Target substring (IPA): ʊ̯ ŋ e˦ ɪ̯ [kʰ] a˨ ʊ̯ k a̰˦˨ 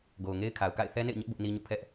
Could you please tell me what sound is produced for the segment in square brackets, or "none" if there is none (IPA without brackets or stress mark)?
kʰ